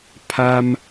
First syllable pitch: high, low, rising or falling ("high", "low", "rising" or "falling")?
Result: high